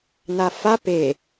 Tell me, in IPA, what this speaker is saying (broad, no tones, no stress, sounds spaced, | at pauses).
n̪ a f a p e